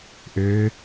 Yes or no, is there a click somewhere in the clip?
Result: no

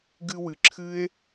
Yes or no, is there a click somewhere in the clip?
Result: yes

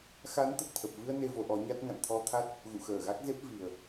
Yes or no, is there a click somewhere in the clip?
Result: no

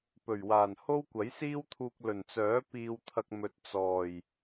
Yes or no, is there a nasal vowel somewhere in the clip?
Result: no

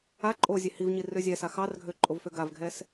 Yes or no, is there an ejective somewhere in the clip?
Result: yes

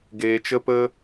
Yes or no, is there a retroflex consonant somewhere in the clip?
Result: no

